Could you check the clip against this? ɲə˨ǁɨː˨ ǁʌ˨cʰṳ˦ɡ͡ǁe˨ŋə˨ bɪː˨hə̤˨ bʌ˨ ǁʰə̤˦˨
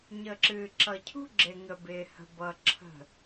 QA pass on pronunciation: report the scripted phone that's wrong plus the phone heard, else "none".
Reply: none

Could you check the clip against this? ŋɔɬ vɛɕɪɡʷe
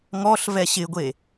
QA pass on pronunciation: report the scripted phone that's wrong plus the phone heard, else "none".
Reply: none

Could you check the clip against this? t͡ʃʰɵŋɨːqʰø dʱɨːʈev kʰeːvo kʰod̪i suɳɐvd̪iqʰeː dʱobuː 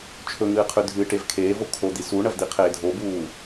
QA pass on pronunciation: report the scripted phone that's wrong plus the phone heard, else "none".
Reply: ø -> ʉ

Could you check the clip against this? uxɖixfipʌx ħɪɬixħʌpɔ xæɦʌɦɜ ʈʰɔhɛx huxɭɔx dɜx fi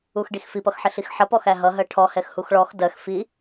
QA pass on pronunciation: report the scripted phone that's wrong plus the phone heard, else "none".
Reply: none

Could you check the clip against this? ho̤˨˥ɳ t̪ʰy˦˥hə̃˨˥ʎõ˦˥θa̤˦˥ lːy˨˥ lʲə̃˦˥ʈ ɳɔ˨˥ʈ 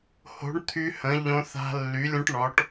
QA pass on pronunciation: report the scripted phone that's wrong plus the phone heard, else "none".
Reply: none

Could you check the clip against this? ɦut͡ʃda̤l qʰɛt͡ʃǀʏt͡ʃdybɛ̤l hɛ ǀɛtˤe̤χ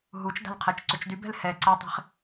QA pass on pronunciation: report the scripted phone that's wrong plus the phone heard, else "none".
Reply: none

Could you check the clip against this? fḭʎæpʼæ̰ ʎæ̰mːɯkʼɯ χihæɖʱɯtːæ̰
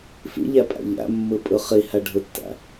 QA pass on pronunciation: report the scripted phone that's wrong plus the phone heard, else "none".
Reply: kʼ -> pʼ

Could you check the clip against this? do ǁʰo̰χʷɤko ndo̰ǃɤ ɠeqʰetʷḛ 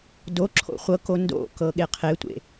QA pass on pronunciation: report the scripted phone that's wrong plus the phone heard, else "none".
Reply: ǃ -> k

